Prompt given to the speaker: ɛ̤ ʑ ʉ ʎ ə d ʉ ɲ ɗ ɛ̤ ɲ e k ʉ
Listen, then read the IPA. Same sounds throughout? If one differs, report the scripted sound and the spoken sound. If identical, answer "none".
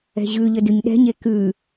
none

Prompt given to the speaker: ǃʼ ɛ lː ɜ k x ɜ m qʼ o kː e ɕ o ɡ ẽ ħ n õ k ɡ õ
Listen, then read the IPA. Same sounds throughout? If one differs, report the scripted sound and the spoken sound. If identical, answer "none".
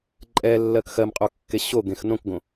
ħ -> x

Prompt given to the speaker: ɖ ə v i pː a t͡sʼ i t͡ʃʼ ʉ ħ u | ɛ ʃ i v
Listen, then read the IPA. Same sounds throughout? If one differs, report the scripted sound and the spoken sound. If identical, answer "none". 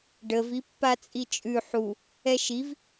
none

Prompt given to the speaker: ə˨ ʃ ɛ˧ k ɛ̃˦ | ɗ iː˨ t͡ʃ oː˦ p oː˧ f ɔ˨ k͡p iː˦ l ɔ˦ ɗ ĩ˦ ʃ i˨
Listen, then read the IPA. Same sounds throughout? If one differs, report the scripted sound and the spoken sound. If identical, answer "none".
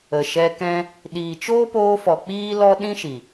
none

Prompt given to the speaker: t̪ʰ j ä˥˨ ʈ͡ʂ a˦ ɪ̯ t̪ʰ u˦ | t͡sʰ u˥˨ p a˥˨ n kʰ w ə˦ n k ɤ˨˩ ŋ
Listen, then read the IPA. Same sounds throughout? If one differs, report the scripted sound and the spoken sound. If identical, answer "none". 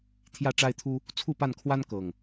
ə˦ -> a˦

